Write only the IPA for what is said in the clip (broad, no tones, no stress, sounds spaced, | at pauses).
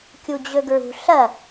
kʲ u d͡ʑ ɵ ɡ ɹ ṳ ɬ ɐ